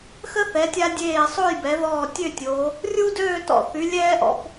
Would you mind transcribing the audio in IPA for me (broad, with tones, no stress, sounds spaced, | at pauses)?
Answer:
x ə˥ θ ɛ˩˧ tʲ a˧ dʲ eː˧˩ sˤ o˥˧ j b ɛ˩˧ ð ɔː˧˩ tʲ ø˥˧ tʲ o˩˧ | rʲ u˥ d øː˥˧ t ɔ̰˧˩ θ y˩˧ lʲ ɛː˥ ʔ ɔ̰˧ p